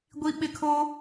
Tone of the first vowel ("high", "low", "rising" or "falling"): high